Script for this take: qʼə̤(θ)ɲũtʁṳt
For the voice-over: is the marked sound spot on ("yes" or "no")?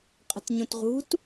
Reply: no